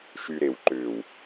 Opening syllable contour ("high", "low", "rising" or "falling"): low